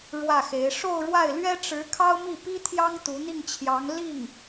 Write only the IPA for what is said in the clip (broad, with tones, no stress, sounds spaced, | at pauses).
ɻ w ä˥˩ x e˧˥ ɪ̯ ʂ o˥˧ ʊ̯ ɻ w a˥˩ ɪ̯ l ɥ ɛ˥ ʈ͡ʂ ɻ̩˧˥ kʰ ɑ˥ ʊ̯ m i˥˩ p i˥ t̪ʰ j ɑ˥ ŋ t̪ u˧˥ n̪ i˥˩ ŋ t͡ɕʰ j ɑ˧˥ ŋ l i˥˩ ŋ